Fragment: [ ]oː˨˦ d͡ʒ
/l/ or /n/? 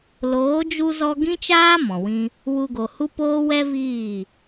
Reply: l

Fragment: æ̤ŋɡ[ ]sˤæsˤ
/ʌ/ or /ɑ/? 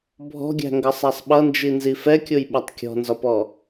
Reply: ʌ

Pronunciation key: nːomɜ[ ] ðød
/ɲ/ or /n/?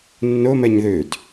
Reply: ɲ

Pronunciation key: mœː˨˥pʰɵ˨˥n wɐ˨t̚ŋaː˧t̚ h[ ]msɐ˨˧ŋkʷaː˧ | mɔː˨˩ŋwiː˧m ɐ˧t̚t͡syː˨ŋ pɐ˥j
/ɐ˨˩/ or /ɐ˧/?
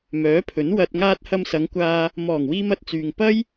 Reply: ɐ˧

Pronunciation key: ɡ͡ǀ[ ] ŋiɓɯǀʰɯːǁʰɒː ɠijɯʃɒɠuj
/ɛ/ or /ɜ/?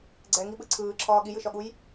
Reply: ɛ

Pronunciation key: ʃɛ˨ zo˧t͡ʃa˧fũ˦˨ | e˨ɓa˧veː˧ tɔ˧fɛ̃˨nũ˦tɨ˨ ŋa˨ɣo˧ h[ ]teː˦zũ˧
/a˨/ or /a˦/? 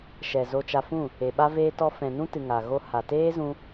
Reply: a˨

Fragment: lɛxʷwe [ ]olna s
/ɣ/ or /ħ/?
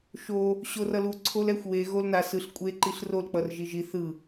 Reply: ɣ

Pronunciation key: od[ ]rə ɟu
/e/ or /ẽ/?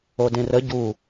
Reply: ẽ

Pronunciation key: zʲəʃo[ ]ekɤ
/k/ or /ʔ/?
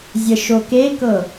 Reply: k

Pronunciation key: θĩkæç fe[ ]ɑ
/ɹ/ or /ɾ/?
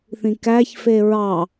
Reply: ɹ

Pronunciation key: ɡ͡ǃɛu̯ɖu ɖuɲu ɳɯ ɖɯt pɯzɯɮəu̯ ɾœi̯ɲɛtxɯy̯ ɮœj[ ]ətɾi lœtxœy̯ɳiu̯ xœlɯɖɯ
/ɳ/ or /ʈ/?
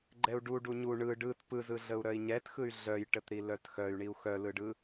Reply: ʈ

